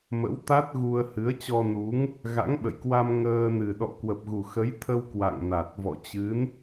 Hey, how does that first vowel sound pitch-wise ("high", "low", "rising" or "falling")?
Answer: rising